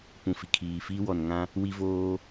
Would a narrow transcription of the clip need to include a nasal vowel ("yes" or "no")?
yes